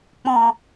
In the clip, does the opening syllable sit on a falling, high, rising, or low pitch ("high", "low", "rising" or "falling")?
low